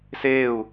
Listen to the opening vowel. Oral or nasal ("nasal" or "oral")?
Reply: oral